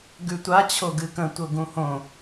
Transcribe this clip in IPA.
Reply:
ɡ ʉ tʷ a t͡ɕʰ o ɡ ɨ k ə̃ tʷ ɤ ɡ ũ h õ

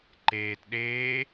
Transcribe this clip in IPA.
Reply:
ǃ eː t ɗ eː

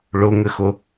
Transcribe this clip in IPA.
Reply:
ɭ ʊ ŋ ɘ x ʊ

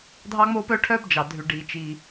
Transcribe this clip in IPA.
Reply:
dʱ ɑ˥ ŋ͡m oː˥ p œ˥ ʈʰ œ˥ b d͡ʒ ɑ˩ dʱ ʉ˩ ɖ iː˩ t͡ʃ i˩

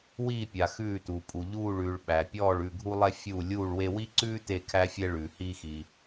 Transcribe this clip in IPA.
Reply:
w iː˥˧ pʲ a˧ x ʉː˥˧ t uː˧ pʼ u˧ ʎ uː˥˧ ɭ ʉː˧ ɭ ɓ æ˧ pʲ ɔː˥˧ ɭ ʉ˥˧ ɡʱ u˥ lˠ ɛ˥ fʲ uː˥˧ lʲ uː˥˧ ɭ w e˥ w i˥ ǀ ʉː˥ t e˥˧ kʰ æ˥ fʲ ɛ˥ ɭ ʉː˧ h iː˥ x iː˧

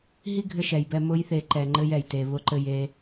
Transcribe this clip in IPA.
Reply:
ɦ i˦ ɡʱ ɘ˧ ʃ ɛ˨ j b ɛ˧ m ʊ˦ j θ e˧ ǃ ɛ˧ ŋ͡ǃ ɘ˦ j ɛ˨ j t e˧ β ʊ˧ ǃ ɘ˧ j e˧

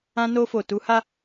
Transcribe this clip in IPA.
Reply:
ã˧ n o˧ f o˨ t u˨˦ h a˦

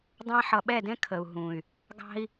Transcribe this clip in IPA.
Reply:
dˤ ɑ̃˧ ħ ʌ˨ ɓ ɛ˦˨ d ɛ̃˦ kʰ ə˨ u̯ ɦ ũ˨ y̯ | ɡ ɑ̤˦ i̯

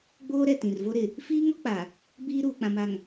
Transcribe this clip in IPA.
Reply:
ɡ͡b oː˦ ɾ ɛ˦˨ t ĩ˨ r v o˦ ɾ ɪ˨ | f iː˦ ŋ ɔ˦ k͡p a˨ | b iː˦ ɾ uː˨ k͡p ã˨ m a˨ ŋ

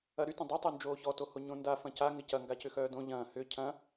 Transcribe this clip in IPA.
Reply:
ɐ ɾ y t ɐ̃ dˤ ɪ tˤ u n d͡ʒ oː ç ɔ t o h o ɲ õ n d a f ɐ̃ c a ŋ ɪ c ɐ ŋ ɡ a c ʏ x œː d õ ʎ ɐ̃ː h ʏ cʰ ɐ̃

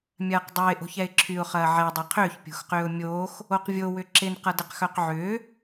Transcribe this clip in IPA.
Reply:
mʲ ɐː q dˤ œ ɪ̯ ʔ o̤ ç ɛ ɪ̯ ǁʰ y ʊ̯ χ ɐː ʕ ɛ dˤ ɛ qʰ ʏː ç pʲ o̤ x q ʏː ʊ̯ mʲ oː x | o q vʲ o w ʏ ǁ ɪ n q ɐ d ɪ q x œ q ʕ ʏː

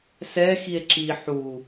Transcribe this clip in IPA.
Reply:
s ɛ x i e̯ ǁ i ħ u

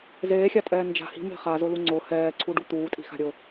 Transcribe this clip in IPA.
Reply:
z eː xʲ a tʼ ɛː n d͡ʒ a̤ h i̤ m e̤ χ a z ʊ l u ŋ͡ǀ ʊ h ɛː ǀʰ u ɖ u t̪ uː tʼ i̤ x a̤ ɾʲ ʊ

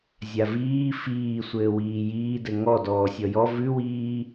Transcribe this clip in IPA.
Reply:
zʲ a v iː f iː sʷ ɘː w iː j iː d ɘ ŋ ɔ d ɔː sʲ ɔ j ɔ v ʉ w iː

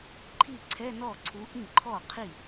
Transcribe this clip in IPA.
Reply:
ǃʰ i˥˩ ǀʰ ɛ˧˥˧ n ɔ˥˩ ǀʰ u˨˥ ʔ ĩ˥˩ ǃʰ ɔ˥˩ qʰ i˥˩

